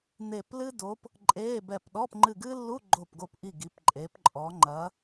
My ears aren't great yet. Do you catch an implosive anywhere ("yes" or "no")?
yes